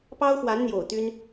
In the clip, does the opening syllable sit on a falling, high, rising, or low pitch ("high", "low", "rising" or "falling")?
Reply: high